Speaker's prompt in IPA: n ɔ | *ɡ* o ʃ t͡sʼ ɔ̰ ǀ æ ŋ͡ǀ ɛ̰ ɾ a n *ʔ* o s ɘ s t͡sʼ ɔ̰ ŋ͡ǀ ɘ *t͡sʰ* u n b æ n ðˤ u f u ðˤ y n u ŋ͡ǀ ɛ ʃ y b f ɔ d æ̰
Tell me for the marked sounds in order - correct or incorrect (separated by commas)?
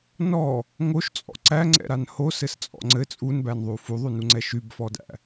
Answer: incorrect, incorrect, incorrect